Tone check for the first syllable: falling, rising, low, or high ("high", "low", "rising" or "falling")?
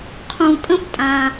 low